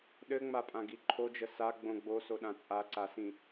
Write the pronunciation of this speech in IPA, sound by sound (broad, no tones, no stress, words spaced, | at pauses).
ɗɘŋ͡mapʼãɡi ǃʰod͡ʒə saɡ͡bõ ɡ͡bosoɗã t͡sʼaǀasĩ